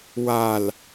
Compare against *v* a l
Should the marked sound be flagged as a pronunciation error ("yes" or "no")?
yes